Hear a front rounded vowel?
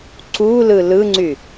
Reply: yes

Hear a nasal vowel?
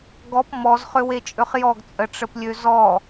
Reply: no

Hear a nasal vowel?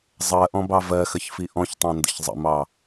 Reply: yes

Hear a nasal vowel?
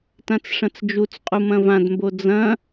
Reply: yes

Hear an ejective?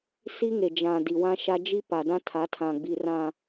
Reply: no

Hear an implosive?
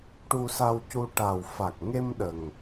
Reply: yes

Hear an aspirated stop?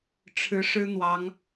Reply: yes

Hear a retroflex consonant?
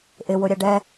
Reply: yes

